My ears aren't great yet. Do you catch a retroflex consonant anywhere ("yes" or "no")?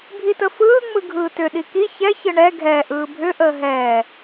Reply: yes